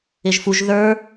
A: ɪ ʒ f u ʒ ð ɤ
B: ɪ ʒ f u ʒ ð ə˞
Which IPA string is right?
B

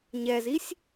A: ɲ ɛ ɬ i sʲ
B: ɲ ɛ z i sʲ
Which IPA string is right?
B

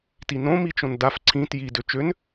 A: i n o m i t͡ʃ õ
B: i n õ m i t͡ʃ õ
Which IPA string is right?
B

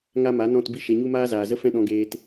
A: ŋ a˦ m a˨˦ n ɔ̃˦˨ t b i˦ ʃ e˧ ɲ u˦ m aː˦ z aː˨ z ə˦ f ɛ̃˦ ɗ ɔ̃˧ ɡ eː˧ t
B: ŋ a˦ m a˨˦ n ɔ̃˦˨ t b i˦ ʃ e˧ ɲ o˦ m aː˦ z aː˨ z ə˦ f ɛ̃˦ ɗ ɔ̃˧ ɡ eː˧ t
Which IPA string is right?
A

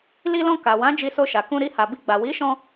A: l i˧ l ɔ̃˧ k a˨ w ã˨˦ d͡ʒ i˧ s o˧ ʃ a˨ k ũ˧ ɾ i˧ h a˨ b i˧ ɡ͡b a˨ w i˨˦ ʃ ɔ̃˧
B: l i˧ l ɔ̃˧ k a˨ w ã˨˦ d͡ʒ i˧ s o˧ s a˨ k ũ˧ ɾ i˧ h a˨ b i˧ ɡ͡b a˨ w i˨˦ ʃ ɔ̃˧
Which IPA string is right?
A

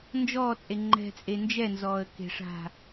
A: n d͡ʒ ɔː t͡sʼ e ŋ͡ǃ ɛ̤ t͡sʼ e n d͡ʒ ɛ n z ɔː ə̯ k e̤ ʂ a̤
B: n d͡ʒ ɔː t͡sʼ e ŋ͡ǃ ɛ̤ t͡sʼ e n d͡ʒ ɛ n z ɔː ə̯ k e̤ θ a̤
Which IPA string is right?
A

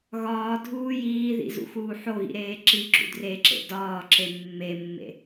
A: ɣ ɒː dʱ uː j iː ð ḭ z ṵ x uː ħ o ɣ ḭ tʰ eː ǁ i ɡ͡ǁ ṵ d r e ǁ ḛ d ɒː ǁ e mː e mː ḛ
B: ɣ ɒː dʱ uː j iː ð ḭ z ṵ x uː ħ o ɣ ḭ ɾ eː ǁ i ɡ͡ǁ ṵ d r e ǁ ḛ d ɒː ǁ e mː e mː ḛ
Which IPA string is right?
B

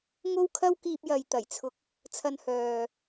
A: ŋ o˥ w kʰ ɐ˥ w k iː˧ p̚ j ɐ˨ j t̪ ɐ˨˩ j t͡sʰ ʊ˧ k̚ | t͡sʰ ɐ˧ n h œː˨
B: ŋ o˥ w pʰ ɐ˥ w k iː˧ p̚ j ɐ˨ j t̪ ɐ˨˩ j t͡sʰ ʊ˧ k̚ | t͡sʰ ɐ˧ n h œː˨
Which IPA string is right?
A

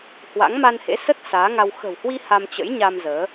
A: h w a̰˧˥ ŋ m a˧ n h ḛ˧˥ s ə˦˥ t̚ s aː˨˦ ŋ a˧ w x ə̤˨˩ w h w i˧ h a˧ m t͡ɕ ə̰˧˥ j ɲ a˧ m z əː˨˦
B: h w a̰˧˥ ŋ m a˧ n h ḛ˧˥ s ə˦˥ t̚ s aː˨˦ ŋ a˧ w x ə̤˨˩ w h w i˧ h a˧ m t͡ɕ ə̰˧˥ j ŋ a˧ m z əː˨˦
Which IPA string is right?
A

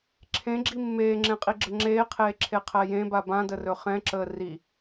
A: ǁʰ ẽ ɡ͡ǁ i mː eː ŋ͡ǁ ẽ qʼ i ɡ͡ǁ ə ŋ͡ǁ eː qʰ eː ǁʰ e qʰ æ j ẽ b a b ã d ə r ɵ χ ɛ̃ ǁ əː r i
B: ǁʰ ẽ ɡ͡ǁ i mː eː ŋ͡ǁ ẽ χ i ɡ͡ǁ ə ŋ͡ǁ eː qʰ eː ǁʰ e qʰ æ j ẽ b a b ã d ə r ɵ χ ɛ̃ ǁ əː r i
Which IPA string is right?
A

